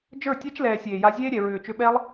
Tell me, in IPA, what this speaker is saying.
d͡ʒ ə˞˦˨ tʲ ɛ˦ t͡ʃ l ɛː˨ sʲ eː˨ j a˧ zʲ eː˦ ɾʲ ɛ˨ ɹ ʏː˨ t͡ʃ ʏ˧ ɓ ɛ˦ lˠ

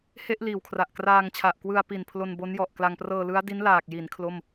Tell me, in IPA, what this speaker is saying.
h e˥˩ ʔ l iː˨˩ w kʰ r a˨˩ ʔ k r aː˧ ŋ t͡ɕʰ a˨˩ ʔ k w ɯ˧ a̯ p i˨˩ n pʰ l o˧ n b o˦˥ n j ɔ˨˩ ʔ k l a˧ ŋ p r ɤː˧ l ɯ˦˥ a̯ d i˦˥ n l aː˨˩ k̚ j i˩˦ n kʰ l o˥˩ m

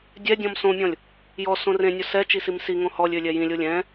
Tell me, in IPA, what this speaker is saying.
dʲ ɛ dʲ ɔ̃ m s õ mʲ ɔ̃ lʲ | j ɔ s õ r ẽ nʲ o s ɛ t͡ʃ i s i m s i ŋ õ h ɔ lʲ ø lʲ ɛ j ĩ lʲ o lʲ ɛ̃

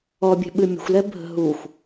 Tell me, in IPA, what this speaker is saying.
ɔ bʲ ɛ̤ ɓ ɨ mʲ ə̤ xʷ l ɛ bʱ ə̤ ɦ u xʷ

